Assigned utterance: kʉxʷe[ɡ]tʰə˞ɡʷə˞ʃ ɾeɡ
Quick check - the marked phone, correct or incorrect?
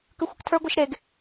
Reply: incorrect